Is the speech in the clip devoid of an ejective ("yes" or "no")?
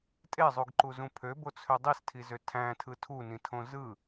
no